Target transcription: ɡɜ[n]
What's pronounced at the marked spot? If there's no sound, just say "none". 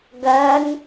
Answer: n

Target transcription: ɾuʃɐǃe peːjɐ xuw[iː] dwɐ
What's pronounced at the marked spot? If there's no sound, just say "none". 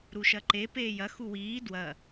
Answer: iː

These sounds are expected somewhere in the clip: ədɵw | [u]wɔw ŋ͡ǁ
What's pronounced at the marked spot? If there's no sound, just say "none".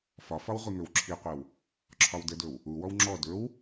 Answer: u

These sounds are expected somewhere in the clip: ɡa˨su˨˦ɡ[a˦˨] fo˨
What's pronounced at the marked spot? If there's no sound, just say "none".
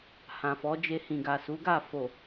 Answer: a˦˨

